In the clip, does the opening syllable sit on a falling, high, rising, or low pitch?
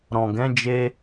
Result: low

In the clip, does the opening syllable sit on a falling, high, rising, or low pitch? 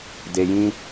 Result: low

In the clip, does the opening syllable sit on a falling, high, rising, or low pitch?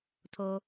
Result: low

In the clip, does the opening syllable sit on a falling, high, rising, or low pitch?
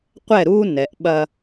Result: falling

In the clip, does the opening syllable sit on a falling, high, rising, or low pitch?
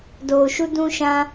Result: low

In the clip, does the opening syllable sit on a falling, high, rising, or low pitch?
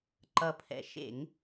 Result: low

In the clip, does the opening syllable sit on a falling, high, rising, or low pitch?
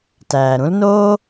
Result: low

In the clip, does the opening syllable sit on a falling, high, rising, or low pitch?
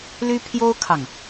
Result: high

